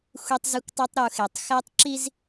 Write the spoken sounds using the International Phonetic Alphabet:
xʷ i˦ tˤ z e˦ kʷ tˤ u˦ tˤ ɾ u˨ x e˨ tˤ x æ˦ tˤ ǁ i˦ z

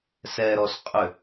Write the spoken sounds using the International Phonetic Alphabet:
s ɛ ɾ ɔ s qʼ ʏ

